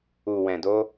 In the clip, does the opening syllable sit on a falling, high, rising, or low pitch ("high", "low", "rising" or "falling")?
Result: low